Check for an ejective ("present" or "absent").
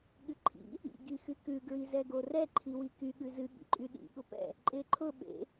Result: present